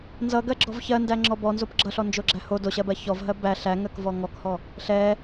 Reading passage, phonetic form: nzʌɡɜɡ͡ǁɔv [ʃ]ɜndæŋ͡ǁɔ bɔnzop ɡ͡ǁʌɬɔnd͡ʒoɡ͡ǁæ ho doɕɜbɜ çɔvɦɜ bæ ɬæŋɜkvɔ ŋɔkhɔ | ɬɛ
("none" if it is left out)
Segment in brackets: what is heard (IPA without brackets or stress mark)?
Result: ç